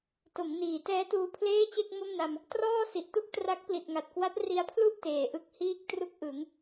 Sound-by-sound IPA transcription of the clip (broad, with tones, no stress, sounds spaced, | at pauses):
t o˩˦ m n iː˩˦ t ɛː˦˥ t uː˧ pʰ l eː˥˩ t͡ɕ e˥˩ k̚ m o˥˩ m n a˧ m | t r ɔː˥˩ s i˨˩ ʔ t u˥˩ k̚ t r a˦˥ k̚ p l i˨˩ t̚ ŋ a˨˩ t̚ k w a˦˥ t̚ r i˧ a̯ pʰ l u˥˩ ʔ t eː˨˩ ʔ ɯ˥˩ k̚ h iː˥˩ k̚ t r u˥˩ k̚ ʔ ɯ˩˦ ŋ